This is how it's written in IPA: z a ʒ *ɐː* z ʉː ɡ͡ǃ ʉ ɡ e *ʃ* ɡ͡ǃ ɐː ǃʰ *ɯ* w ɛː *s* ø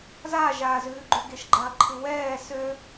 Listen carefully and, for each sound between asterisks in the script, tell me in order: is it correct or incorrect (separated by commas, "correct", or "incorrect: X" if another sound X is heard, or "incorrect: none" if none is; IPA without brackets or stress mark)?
incorrect: aː, correct, correct, correct